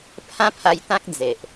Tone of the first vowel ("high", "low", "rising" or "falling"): high